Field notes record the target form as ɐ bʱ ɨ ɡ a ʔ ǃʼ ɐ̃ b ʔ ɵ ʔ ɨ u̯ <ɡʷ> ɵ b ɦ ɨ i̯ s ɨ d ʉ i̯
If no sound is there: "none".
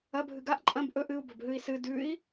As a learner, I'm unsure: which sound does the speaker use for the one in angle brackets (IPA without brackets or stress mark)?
b